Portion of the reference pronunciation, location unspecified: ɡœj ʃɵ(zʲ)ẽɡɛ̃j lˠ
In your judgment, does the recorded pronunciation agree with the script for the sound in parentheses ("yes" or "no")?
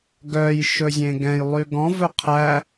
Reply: yes